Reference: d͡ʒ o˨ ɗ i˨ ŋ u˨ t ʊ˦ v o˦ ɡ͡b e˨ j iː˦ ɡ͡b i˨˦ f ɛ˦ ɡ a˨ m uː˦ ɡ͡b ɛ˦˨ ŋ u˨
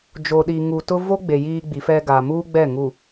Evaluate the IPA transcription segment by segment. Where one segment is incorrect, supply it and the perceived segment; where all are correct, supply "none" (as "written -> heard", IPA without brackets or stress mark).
none